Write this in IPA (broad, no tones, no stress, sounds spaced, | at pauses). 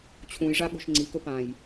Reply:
t͡ɕʰ ũ j ʐ a ɠ o̤ ʃ ŋ͡ǀ i k ɵ p ã j